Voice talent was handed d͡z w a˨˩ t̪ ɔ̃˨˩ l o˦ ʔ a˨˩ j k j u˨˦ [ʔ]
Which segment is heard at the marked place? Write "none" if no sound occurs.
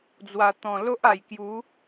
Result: none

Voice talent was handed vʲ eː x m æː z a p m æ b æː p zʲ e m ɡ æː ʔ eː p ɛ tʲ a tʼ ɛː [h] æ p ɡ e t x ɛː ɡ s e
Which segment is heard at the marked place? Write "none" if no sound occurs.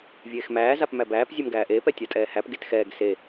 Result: h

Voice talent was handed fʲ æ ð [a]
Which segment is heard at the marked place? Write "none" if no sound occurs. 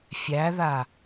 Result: a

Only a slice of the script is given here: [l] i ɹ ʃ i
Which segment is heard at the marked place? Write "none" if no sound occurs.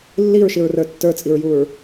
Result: lː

